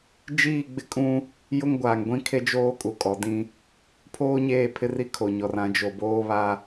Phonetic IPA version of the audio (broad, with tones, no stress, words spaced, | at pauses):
d͡ʒiː˦˨ɡ͡bɪ˦kʼũ˦ | jʊ˦ŋɡʷaː˨ŋ ɡʷĩ˦ kʰe˦d͡ʒoː˦kʼu˨ kʼɔ˨dĩ˦ | pʰoː˦ɲeː˦˨pʰɪ˦ri˦ kʰo˨ɲɔ˨rã˨˦ d͡ʒo˨boː˦βa˦